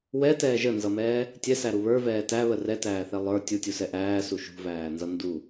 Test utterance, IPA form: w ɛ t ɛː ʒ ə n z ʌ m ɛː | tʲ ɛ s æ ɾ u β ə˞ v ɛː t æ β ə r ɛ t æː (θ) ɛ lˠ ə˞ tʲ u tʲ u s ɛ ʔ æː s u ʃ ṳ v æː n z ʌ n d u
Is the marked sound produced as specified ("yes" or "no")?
yes